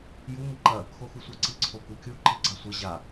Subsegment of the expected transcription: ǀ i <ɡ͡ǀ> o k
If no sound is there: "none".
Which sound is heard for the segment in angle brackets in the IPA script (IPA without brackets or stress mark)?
ǀʰ